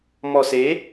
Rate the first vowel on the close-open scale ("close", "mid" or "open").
mid